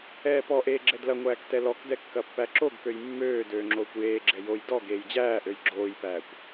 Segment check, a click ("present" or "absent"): present